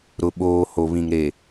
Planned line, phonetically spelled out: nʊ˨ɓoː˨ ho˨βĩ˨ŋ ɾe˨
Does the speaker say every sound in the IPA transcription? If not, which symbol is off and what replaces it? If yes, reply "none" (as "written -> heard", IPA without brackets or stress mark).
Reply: n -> ɾ